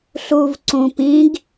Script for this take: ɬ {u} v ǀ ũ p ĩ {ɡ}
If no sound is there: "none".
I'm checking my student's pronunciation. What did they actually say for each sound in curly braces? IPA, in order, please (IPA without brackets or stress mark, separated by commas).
u, ɡ